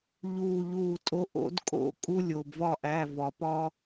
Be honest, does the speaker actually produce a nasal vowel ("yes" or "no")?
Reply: no